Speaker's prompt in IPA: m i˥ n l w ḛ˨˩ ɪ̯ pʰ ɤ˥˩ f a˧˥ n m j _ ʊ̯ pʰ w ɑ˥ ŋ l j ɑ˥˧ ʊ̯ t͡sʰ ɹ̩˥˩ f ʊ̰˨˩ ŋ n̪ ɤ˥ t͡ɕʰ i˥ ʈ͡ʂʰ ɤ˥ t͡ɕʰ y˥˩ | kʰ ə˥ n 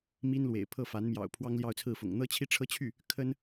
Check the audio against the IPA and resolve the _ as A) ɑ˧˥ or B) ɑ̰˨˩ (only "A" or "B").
B